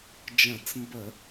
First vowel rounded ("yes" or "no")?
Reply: no